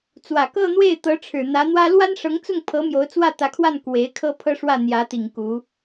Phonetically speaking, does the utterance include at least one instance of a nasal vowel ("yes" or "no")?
no